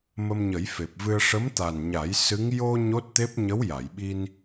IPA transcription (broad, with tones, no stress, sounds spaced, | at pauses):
m ə˧ m ɲ ə˨˩˦ j f e˨˩ p̚ v ɨ˧ ə̯ ʂ ə˧˥ m t̪ a˨˩ n ɲ a˨˩˦ j s ɨ˧˥ ŋ j o˧ ɲ o˦˥ t̚ t̪ e˦˥ p̚ ɲ ə˧˥ w j a˨˩˨ j ɓ i˧ n